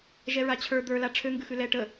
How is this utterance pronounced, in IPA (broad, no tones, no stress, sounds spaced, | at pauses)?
ʒ ɛ ɹ a t͡ɕʰ ə˞ d̪ ə˞ l a ʈ͡ʂʰ ø ŋ ɡ ʉ x ʉ l ɛ ʈ ə